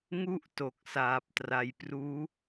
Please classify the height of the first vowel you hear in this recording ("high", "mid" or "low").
high